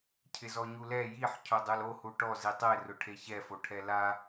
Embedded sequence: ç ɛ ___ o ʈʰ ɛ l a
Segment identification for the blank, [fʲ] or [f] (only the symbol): f